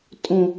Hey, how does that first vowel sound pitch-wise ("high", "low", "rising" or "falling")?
low